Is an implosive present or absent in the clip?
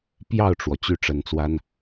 absent